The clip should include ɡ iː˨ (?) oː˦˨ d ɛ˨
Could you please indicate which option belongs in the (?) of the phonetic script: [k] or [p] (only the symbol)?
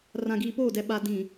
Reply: p